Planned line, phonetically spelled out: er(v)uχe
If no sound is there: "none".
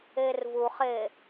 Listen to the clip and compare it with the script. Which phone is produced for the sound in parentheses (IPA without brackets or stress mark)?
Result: v